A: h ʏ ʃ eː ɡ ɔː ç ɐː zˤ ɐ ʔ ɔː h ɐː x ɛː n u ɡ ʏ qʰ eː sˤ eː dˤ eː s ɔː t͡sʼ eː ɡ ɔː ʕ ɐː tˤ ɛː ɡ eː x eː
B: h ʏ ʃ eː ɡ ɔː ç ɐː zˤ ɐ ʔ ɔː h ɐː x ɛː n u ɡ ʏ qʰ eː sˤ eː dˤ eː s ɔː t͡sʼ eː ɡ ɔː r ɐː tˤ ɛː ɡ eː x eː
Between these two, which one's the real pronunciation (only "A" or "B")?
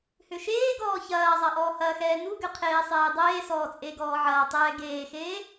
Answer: A